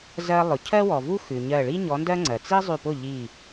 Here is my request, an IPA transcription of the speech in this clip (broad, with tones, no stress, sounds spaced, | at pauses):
z ɜ˧ lˠ ʊ˩ cʰ ɜ˥ w ɔ˩ v u˥ x ʉ˩ ɲ ɜ˧˩ ɭ i˥ ɲ ɔ˨˥ n d ɜ˥ ŋ͡ǀ ɜ˩ t͡s i˥ zˤ ʉ˧˩ p ʊ˥˩ ʎ i˧˩